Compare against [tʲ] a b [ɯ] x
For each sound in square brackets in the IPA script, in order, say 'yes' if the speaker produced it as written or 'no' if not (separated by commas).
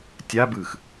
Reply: yes, yes